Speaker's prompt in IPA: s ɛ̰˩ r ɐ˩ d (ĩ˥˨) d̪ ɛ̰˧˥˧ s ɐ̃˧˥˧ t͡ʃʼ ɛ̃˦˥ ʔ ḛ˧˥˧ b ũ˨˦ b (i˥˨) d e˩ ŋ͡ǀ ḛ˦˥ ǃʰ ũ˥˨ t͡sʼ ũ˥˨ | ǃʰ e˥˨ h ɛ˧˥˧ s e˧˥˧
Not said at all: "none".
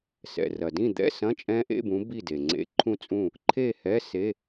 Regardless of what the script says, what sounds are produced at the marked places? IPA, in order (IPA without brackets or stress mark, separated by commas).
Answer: ĩ˥˨, i˥˨